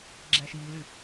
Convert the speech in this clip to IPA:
ɡ͡ǁ æ ʃ iː l y

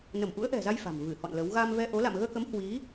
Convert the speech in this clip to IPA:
n ə˧˩ m ʔ ṵ˧˥ ə̯ ʔ ɛ̤˨˩ z a˧ j f a̤˨˩ m v ɨ˧˩ h ɔ̰˧˨ n l ə˨˦ w ɣ a˧ m v ɛ˧ ʔ o˨˦ l a̰˧˨ m ɣ əː˧ k ə˨˦ m h w i˨˦

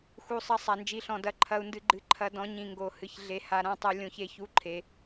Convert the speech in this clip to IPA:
x u˧ sˤ ɐ˧˥ sˤ a˧ n d͡ʒ i˧˥ ɬ ɔ̃˧ d ɐ˧˥ ǃʰ ɐ˧ u̯ n d ɨ˧ ɡ͡ǃ ɨ˧ ǃʰ ɐ˧ d ɔ̃˧˥ ɲ ĩ˧ ŋ ɡ o˧ h ɨ˧ ç ɮ e˧ h a˧ ɾ ã˧˥ tˤ u˧ lʲ õ˧ ç e˧ ç u˧˥ ǃʰ e˧

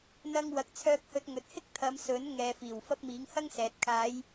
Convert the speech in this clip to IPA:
n̪ ɐ˥ ŋ w ɐ˧ k̚ t͡sʰ œː˥ k̚ h ɵ˧ t̚ ŋ ɵ˨ t̚ h ɪ˥ k̚ t̪ʰ ɐ˨˧ m s ɵ˨˥ n ŋ ɛː˨ f iː˨˩ w f ɐ˥ p̚ m iː˨˥ ŋ h ɐ˥ ŋ s ɛː˨ t̚ kʰ aː˨˧ j

